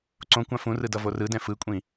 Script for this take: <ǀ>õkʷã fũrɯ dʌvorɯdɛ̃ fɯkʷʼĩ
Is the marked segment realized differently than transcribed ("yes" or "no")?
no